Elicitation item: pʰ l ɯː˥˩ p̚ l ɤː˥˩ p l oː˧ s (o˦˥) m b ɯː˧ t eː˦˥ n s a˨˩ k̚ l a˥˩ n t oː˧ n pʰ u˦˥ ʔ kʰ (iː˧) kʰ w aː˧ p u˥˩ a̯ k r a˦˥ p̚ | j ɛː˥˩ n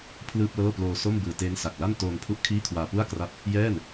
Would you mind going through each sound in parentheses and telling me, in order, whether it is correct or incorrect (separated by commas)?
incorrect, incorrect